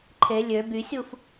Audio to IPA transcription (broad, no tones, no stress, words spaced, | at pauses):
ǃʰe lʲø bysʲuf